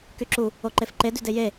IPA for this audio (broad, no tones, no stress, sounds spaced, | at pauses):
k y ǁ u | o ǃ e f ǃ e d y d e j e